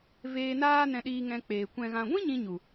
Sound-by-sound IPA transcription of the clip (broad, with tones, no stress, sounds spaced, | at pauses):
v eː˧ n aː˦ n ɛ̃˧ ɗ iː˧ ŋ ɛ̃˧ k͡p eː˨ kʷ ɛ̃˨ ɣ ã˨ ɡʷ ĩ˦ ɲ ĩ˧ ɲ u˨